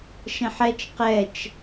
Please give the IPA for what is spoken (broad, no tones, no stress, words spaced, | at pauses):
ʃɛ̃ħɛt͡ʃ qɛt͡ʃ